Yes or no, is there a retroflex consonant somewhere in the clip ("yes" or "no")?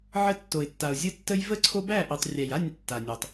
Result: no